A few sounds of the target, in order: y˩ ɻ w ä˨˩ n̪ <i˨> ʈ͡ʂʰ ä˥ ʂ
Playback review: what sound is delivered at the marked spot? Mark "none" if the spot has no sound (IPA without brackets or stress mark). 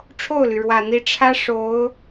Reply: i˧˥